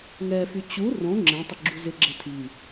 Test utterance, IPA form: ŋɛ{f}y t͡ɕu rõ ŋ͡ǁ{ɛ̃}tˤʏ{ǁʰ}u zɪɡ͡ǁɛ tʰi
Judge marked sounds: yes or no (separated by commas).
yes, yes, no